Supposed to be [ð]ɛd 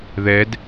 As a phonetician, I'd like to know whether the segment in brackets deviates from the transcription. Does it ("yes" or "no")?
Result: no